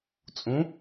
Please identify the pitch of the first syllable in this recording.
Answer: rising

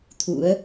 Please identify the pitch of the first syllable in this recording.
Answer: rising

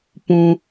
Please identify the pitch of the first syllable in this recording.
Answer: high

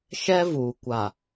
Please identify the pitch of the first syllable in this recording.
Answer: high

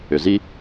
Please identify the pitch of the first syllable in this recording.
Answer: low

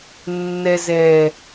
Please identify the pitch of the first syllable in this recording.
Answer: low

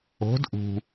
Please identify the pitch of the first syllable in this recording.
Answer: rising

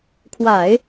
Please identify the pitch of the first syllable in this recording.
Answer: low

